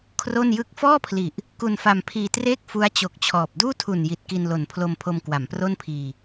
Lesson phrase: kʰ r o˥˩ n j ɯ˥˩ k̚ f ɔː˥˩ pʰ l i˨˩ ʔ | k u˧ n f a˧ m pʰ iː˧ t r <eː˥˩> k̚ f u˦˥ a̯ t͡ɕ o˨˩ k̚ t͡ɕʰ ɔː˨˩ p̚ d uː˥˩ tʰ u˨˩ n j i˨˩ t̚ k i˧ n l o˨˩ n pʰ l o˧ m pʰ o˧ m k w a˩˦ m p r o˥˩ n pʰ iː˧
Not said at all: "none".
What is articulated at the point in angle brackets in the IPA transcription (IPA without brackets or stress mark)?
eː˥˩